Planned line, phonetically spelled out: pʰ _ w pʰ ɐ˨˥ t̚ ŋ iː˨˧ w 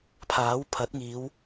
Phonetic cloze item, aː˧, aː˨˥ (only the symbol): aː˨˥